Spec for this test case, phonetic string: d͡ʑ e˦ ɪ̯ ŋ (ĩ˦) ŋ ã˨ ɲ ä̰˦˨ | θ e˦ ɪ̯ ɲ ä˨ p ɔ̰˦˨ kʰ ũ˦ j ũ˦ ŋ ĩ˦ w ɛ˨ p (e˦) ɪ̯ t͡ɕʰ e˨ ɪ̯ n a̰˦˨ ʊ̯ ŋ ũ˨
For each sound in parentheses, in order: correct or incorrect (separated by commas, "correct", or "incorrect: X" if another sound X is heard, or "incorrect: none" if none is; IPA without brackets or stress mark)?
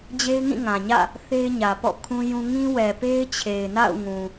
incorrect: ĩ˦˨, correct